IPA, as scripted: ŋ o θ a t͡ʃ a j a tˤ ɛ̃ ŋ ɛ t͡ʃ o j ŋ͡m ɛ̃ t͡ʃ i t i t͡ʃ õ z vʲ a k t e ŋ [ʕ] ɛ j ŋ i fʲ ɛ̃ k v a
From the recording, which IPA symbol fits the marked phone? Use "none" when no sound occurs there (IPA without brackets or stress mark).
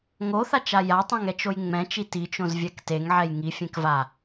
ʕ